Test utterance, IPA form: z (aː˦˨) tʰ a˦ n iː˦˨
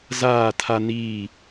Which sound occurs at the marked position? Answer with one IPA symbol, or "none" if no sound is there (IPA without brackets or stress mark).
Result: aː˦˨